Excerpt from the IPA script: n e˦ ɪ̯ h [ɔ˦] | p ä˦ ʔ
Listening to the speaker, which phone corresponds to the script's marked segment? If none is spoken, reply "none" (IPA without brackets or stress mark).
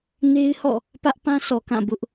ɔ̰˦˨